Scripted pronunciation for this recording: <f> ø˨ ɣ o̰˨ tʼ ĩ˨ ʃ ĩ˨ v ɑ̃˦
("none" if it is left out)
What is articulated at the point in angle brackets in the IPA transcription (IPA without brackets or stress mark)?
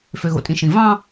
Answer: f